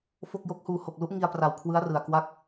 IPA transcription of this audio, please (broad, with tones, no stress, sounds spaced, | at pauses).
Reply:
f o˥˩ k̚ j o˦˥ k̚ h uː˧ h o˨˩ k̚ l u˦˥ ʔ ŋ i˧ a̯ p r a˨˩ w kʰ w ɯ˦˥ a̯ r ɯ˨˩ a̯ k w a˥˩ k̚